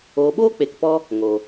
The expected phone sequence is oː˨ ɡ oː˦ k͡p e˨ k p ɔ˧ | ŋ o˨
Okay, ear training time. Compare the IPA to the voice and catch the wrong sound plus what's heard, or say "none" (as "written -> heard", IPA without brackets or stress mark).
ɡ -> ɓ